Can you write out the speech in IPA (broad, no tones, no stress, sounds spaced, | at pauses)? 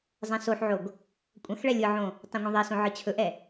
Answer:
zˤ ɛ̃ s o ħ ʕ o ɡ | kʷʼ ɐ̃ x ɭ ɛ lʲ ɯ ʕ õ | tˤ ẽ ŋʷ ɛ̃ ðˤ e s õ ʕ ɯ t͡ɕʰ ɵ ʔ ɛ